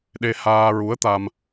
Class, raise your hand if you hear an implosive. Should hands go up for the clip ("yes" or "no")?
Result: yes